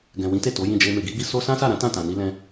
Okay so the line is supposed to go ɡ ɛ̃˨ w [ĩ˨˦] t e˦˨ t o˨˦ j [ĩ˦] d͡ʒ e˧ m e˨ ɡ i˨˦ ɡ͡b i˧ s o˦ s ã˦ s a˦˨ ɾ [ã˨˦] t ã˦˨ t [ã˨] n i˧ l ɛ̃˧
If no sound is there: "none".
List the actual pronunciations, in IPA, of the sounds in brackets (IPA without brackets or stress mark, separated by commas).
ĩ˨˦, ĩ˦˨, ã˨˦, ã˨